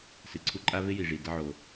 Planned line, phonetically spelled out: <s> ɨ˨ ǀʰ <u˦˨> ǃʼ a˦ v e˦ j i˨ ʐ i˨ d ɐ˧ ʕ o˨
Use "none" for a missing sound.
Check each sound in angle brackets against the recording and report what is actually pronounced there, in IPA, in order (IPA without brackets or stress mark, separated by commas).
s, u˧